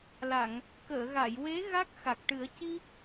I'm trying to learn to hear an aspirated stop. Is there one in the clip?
no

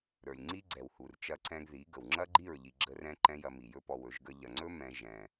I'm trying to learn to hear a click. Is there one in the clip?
yes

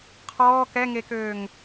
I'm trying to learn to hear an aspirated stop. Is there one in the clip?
yes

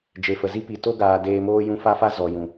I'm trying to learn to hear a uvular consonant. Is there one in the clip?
no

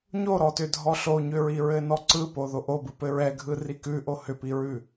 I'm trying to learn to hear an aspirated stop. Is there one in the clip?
no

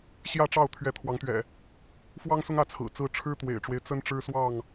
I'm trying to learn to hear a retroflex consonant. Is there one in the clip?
yes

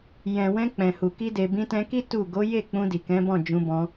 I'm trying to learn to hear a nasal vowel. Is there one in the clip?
yes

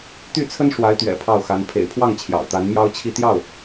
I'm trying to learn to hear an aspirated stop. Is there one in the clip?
yes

